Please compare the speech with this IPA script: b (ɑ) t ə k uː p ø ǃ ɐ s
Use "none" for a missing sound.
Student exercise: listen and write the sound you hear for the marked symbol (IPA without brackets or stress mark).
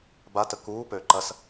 a